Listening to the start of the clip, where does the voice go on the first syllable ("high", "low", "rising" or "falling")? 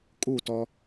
falling